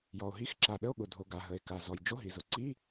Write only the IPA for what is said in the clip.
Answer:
j ɔ˩ o̯ ɦ i˧˥˧ x ǁ a˩ ɗ ə˧˥˧ o̯ ɠ ʊ˩ dʱ o˩ ɡ a˩ ɦ ə˩ e̯ k a˩ z ɔ˩ j d͡ʒ o˧˥˧ ɦ i˩ z ʊ˩ ǀ i˧˥˧

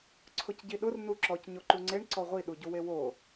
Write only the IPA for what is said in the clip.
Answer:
ǀʰ ʊ c ɟ i ɗ ʊ r n u ǁ ɔ c ɲ o ǃ u ŋ͡ǀ e ɳ ǀ ɔ ʁʷ i ɗ u ɟ u w e w o

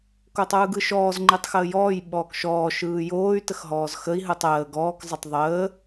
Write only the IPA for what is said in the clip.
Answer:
k o tˤ ɯː ɡ ɯ ʃ ɔː z ŋ͡ǃ i tˤ x əː j ɔː j ɓ ɔː k ʃ ɔː ʃ ɯː j oː y̯ t ə x ɦ ɔː z x ə i̯ ɦ ɯ tˤ əː ɡ ɔː k zˤ ə tˤ ðˤ əː

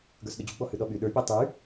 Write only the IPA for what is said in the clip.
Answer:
ɡ ə˞ s ɗ ʊ d͡ʑ u ɡ͡b ɔ h ʉ ɗ ɔ ɓ y ɗ ə˞ pʲ a tˤ y

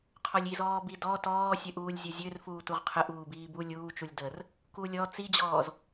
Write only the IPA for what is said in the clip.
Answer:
qʰ ɔ lʲ i z ɔː b i d ɔ t ɔː sʲ ə ʔ uː lʲ zʲ ə zʲ ø r f uː t u ʁ qʰ ə ʔ uː b iː b u lʲ uː t͡ʃ u lʲ d ə r | k u lʲ ɔ t͡s i d͡ʑ ɔː z

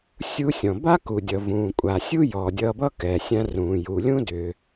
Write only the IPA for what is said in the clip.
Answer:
sʲ u˧ sʲ ɔ̃˩ b a˥ k u˩ dʲ ʌ˩ v ũː˩ kʷʼ a˩ sʲ u˥ j ɔ˩ dʲ ʌː˧ b ʌː˥ k ɛ˩ sʲ ã˧ r ũː˩ j u˩ lʲ ũ˥ d ʏː˩

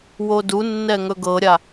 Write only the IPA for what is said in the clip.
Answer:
w o d u nː ɛ ŋ ɵ ɡ ɤ ɾʲ a

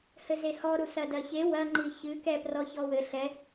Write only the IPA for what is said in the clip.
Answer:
h ɘ z e h ɔ ɾ u s ɐ d ɐ ç e w ɐ ŋ͡ǃ i ç ɨ k ɛ p r ɔ ç ɔ w ɘ ɬ ɛ

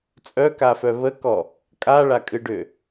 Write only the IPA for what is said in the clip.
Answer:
t͡sʼ œ k a f œ β ə k ɔ | kʼ a ɭ a kʼ ɨ ɖ ʏ

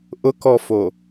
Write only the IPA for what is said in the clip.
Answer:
ʔ ʊ k ɔ f o

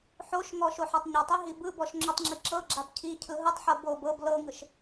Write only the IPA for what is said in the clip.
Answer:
ħ o ʃ ŋ ɔ ʃ o ħ a tˤ ɲ a tˤ i ɦ i b ɯ b ɔ ʃ ŋ͡ǁ o tˤ ŋ͡ǁ i ǁ ɤ ɡ͡ǁ a b cʰ i cʰ ɯ ɦ ɯ tˤ ħ ɤ b o b ɤ b l ɤ ŋ ɯ ʃ

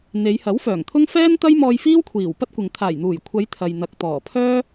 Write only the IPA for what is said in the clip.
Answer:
n̪ e˨˧ j h ɐ˨˥ w f œː˨˩ ŋ t̪ʰ ʊ˥ ŋ f ɛː˥ n t̪ ɐ˥ j m ɔː˧ j f iː˥ w kʷʰ iː˨˩ w p ɐ˥ t̚ kʷ ɪ˨ ŋ t̪ʰ aː˨˩ j n̪ uː˨˩ j kʷʰ ɐ˨˧ j t̪ʰ ɐ˨ j n̪ ɐ˨ k̚ t̪ ɔː˨˩ pʰ œː˥

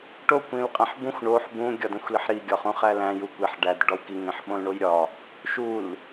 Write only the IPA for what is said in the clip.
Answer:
ʈ o kʷ ĩ l qʼ æ̃ ħ b ũ xʷ ɳ o ħ b ũ ɡʲ ɒ d æ̃ xʷ l i ħ ɾ i ɡʲ ɒ χ ũ χ æ l æ̃ j u kʷ e ħ ɖ æ d ɖ ɒ w k i ŋ ẽ ħ ɓ õ l ɳ o j ɾʲ ɒ | ʃ u l

